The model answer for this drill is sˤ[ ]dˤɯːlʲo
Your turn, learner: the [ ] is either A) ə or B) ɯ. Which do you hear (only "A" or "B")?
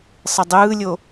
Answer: B